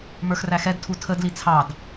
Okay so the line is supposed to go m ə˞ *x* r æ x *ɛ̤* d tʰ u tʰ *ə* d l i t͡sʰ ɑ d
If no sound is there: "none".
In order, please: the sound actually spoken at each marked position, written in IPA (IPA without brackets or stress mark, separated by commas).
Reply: x, ɛ, ə